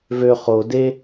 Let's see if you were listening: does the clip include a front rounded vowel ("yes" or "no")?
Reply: yes